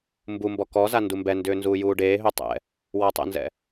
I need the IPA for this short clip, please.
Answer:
mbumbɔ kɔza ndumbɛndʏː nzuːjuːɖeːɦʏː tˤɛ̰ | wɔtˤɛ̰nzɛ̰

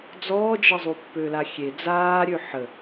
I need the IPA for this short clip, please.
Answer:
d͡zɔːd͡ʒəzˤu pːølaxʲe d͡zaːɾʲø ħə

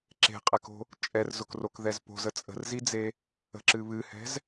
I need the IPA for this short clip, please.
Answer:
ǁe̤qʼɛko̤ | t͡ʃʼɛrzʊkrokðɛz po̤zə t͡sʼə̤rzid͡ze | ə̤ǁɨ βɨhɛ̤z

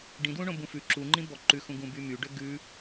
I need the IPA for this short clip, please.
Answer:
ɖĩdwũɳõ bũfʉ ǁuŋ͡ǃĩ bɔǃʉxũ ɡũbymyɖø ɡʉ

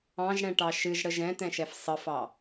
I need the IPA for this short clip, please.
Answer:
ɑ̃ʒɽɛ̃ʈɑ ʃɨʒɽəʒ ɛ̃t̪ɛ̃ʃɛf sˤəfɑ

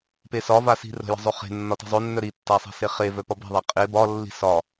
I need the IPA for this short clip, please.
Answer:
pesɒva si̤rə̤jə̤ zˤœχe̤ nːɒti̤zˤœnːœ ɾi tːasˤe̤seχe vœpɒbe̤ðˤa qʼe bɒ lːi̤sɒ

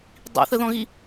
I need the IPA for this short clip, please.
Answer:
dˤḭθəðɔ̃ɣi

